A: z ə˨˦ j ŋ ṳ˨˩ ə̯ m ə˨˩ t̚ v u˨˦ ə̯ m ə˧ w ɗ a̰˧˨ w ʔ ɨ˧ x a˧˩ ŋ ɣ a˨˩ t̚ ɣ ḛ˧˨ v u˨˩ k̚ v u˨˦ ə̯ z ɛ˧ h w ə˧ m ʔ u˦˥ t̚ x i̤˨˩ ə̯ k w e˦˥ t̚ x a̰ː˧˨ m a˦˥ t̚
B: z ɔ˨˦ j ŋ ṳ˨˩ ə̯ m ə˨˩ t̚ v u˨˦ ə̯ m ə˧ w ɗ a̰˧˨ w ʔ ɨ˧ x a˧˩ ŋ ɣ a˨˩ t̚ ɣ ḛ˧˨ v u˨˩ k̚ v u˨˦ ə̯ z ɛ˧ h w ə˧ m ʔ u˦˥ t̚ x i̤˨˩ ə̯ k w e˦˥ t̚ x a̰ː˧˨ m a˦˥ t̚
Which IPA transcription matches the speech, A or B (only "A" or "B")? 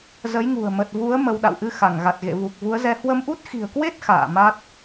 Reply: A